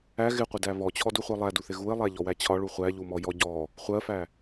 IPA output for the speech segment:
æ ɣ ɪ qʷ ɪ d æ β ɔ t͡ɕʰ ɔ d u χʷ ɜ lˠ æ d u θ ɪ ɣ u ɪ̯ lˠ æ ʎ ɔ w æ t͡ɕʰ ɒ ɭ u χʷ æ ʎ u m ɔ j ɔ ɟ ɔ | χʷ ɜ f æ

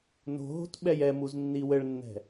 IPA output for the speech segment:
n o̤ ɦ o̤ t ɓ ɛ j ɛ m u z nː i w ɘ ɭ nː ɛ̤

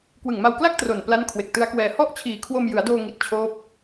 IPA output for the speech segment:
k w ɯ˨˩ ŋ m a˧ w k l a˥˩ k̚ t r o˨˩ n p l a˦˥ n kʰ w e˨˩ k̚ t ɯ˦˥ a̯ k w ɛː˧ h ɔ˥˩ ʔ t͡ɕʰ iː˨˩ kʰ w o˧ m j ɯ˩˦ a̯ d oː˧ ŋ i˨˩ t̚ t͡ɕʰ oː˦˥ p̚

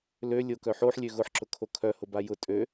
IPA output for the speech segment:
l ø lʲ o k œ ħ o ħ lʲ ø ɣ ʊ ħ ǁ ʊ kʰ o kʰ œ h ʊ b a j ʊ tʼ ø

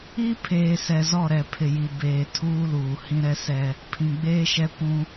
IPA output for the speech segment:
i˦ pʰ eː˨ s ɛ˨ z ɔ˦˨ ɾ ɛ˨ pʰ ɪ˨ j i˨ b eː˨ tʰ uː˦ l uː˨ h ĩ˦ ɾ ɛ˦ s ɛ˦ | pʰ ĩ˨ ɡ͡b eː˦ ʃ ɛ˦ kʷ ũ˦

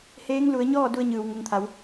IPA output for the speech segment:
h eː˧˥ ŋ l u˩˧ ə̯ ɲ ɔː˥˨ d u˧ ə̯ ɲ ɯː˩ w ŋ u˩˧ ŋ t̪ʰ a˩˧ w

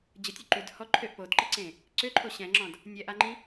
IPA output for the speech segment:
d͡ʑ ə tʲ y ǃ y d h ɔ ǃʰ ø ʔ p o d ǃ ɛ ǀ ẽ | ǀ ø ǃʰ o ɕ ɛ̃ ŋ͡ǁ ɔ̃ d | nʲ ɛ ʔ a ŋ͡ǃ ĩ

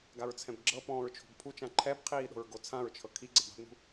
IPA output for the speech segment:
ɡ a ɹ t͡sʰ ɛ̃ b ɡ͡ǁ ɤ p ɔ̃ː ɹ t͡ʃʰ o̤ b pʰ u t͡ʃ ã ǃʰ ɛ b qʰ iː ɗ o̤ ɹ ɡ o t͡sʰ ã ɹ t͡ʃʰ ɤ kʰ i ɡ͡ǀ ɛ b a̤ b n ṳ

